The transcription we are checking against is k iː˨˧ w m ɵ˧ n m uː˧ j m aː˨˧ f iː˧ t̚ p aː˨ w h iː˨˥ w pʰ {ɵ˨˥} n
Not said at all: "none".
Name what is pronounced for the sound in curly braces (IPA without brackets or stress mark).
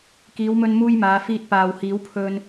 ɵ˧